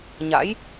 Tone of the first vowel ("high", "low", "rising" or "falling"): rising